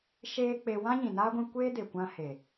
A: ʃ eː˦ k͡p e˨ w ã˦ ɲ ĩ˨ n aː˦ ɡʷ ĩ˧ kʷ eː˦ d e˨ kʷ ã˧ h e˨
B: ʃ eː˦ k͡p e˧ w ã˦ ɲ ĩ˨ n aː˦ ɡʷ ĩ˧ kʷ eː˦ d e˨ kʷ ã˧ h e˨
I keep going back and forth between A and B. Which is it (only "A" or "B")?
B